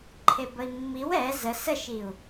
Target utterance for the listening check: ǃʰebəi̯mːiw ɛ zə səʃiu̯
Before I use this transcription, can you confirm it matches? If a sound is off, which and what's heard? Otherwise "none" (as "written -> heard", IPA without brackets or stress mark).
none